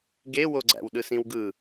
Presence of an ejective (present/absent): absent